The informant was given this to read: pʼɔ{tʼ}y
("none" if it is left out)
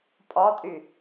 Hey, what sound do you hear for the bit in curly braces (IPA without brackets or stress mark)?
tʼ